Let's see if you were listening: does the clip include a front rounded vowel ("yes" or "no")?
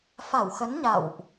no